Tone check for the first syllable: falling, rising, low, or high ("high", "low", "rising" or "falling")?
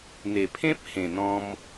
low